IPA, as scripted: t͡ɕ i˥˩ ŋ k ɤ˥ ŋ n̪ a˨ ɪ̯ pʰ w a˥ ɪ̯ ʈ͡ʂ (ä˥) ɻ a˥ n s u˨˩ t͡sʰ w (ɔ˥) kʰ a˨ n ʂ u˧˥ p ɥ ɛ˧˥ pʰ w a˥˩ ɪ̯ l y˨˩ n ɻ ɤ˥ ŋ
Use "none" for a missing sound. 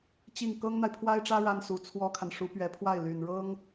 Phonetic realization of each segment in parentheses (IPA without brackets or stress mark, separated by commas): ä˥, ɔ˥